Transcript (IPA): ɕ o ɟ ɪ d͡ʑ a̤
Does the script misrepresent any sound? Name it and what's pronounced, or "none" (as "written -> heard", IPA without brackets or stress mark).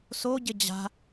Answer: ɕ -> s